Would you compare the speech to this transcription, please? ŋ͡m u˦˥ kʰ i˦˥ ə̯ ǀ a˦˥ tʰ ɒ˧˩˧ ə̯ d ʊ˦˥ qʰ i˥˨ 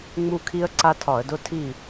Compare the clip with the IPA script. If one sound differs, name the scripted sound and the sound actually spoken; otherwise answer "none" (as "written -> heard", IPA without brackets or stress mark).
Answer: qʰ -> tʰ